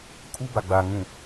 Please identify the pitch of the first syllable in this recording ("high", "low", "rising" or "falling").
high